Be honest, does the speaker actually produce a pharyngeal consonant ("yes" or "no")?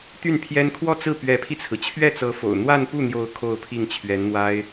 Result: no